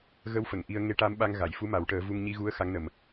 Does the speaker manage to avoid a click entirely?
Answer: yes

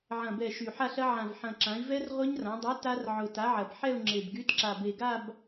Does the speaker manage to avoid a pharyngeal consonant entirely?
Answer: no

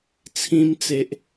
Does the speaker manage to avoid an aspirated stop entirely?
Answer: no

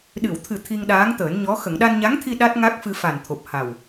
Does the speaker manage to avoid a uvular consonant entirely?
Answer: yes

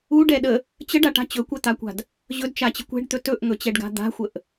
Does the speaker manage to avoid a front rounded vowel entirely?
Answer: yes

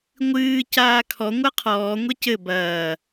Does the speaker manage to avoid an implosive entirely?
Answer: yes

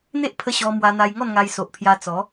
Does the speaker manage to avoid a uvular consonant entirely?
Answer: yes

